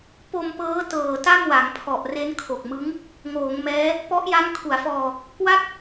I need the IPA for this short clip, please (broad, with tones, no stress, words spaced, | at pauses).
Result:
po˧mpɤː˦˥ tɤː˨˩ta˥˩mwa˩˦ŋpʰɔ˨˩ʔ re˦˥nkʰo˨˩k̚mɯ˦˥ŋ | ŋoː˩˦ŋmɛː˦˥ | pɔ˦˥ʔja˦˥ŋ kʰu˩˦a̯fɔː˧ | kwa˥˩k̚